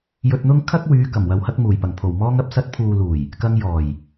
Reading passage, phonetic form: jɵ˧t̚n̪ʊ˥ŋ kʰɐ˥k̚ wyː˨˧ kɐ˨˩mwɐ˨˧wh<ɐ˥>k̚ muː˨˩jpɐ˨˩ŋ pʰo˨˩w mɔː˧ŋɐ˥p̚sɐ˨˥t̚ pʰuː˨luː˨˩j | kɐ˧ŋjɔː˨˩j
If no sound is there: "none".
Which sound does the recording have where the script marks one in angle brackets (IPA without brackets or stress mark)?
ɐ˧